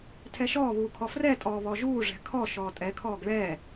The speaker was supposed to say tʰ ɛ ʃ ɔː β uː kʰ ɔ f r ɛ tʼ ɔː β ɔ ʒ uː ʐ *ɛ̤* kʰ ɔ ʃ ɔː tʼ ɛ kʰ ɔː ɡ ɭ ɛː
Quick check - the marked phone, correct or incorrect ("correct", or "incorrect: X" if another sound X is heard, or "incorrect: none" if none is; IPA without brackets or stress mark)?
correct